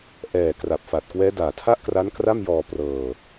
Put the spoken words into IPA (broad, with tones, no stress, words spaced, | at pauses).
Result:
ʔɛː˨˩ kra˨˩p̚fa˨˩t̚kwɛː˦˥ daː˨˩tʰa˥˩ʔkra˦˥n kra˥˩mjɔː˧ prɤː˧